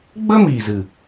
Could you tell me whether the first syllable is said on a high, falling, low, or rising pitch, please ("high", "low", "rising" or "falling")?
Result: high